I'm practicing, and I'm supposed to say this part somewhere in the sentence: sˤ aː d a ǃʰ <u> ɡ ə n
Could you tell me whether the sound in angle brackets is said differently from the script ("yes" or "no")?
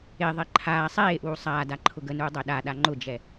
yes